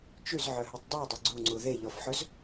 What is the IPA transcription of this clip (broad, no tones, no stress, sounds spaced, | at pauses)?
t͡ʃ ʉ z ʕ œ ɦ ʉ tˤ dˤ ʉ ʊ̯ dˤ ø ɡ͡ǀ u ŋ͡ǀ u ð e ʎ ɔ f ħ ɵ z